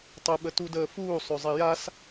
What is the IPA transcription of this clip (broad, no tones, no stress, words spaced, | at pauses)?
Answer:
tˤəɓətudəː fuːsˤøzˤi jas